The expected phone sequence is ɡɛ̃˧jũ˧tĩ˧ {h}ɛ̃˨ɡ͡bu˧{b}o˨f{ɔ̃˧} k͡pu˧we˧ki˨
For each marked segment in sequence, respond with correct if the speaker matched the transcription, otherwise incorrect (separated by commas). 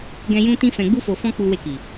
incorrect, incorrect, correct